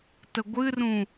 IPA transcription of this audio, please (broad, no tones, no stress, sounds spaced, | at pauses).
t ə ɡʷ ɨ r ũ